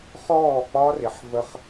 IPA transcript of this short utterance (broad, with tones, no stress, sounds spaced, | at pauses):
χ ɔː˦˨ k͡p ɒ˦ r ɪ˨ ħ v ə˦ χ